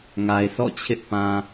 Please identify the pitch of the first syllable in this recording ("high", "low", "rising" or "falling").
low